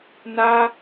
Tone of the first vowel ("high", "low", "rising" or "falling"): high